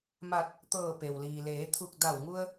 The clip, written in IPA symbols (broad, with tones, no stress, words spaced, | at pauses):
ma˧˩t̚ | t̪ɤː˧˩pe˩wliː˩leː˩˧ t̪ʰu˧˩k̚ da˧˩wŋu˧ə̯